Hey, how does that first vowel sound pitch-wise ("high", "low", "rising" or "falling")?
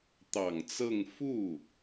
low